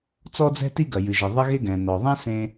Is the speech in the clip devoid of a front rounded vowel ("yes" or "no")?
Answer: yes